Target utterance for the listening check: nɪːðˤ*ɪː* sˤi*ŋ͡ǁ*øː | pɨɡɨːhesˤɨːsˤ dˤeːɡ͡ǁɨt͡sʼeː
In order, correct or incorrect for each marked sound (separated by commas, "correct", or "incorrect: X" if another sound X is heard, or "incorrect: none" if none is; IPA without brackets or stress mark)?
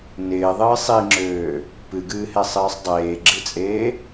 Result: incorrect: ɨː, correct